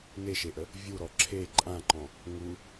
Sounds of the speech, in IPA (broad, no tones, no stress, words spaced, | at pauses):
neʃeʔə | vʲuɾɔ ǁʰe ǃʼãǃɔ̃ | ŋu